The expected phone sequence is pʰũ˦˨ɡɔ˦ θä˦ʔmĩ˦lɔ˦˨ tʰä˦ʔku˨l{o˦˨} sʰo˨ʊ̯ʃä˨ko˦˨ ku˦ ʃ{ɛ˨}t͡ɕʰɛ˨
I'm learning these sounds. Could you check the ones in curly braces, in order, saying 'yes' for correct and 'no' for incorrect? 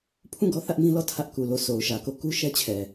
yes, no

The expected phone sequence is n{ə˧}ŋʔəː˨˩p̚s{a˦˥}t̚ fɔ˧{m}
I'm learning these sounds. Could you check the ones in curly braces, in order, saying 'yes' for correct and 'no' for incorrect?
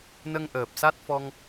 yes, yes, no

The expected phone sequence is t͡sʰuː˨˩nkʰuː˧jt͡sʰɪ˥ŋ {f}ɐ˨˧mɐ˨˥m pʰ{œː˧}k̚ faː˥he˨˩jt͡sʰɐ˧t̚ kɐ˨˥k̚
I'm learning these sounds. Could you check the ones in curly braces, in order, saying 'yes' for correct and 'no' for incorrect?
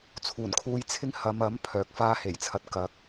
no, no

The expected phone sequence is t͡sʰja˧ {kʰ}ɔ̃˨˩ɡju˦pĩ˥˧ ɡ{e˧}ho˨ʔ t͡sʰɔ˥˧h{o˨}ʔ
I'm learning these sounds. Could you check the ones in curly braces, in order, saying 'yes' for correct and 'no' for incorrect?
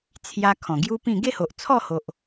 yes, no, yes

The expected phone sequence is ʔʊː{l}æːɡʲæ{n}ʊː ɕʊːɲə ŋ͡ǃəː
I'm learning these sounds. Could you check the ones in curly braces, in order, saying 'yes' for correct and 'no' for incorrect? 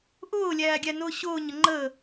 no, yes

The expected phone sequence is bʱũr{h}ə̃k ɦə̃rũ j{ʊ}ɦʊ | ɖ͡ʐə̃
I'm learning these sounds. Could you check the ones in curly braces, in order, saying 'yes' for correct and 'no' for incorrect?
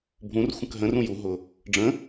no, no

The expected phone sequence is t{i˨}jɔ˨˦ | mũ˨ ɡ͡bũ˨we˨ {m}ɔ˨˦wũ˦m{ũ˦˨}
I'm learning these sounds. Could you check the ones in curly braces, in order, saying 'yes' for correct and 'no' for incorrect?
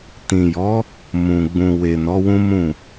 no, no, yes

